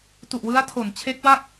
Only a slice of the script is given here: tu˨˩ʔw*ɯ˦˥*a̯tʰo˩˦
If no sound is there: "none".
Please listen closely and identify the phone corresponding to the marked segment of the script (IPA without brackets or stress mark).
ɯ˦˥